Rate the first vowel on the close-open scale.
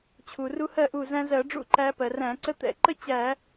close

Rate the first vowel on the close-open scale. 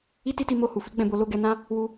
close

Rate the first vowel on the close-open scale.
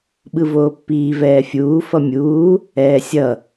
close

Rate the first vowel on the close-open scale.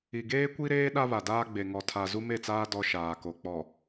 close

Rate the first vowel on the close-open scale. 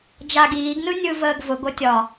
open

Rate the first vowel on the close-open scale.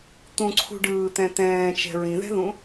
close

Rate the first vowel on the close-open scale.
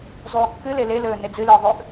close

